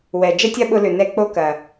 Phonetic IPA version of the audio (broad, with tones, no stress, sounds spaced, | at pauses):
w ɛ˨ d͡ʒ ə˦ tʲ ɐ˦ ɓ ʊ˧ l ʏ˨ n ɛ˦ k͡p o˦ k ɐ˨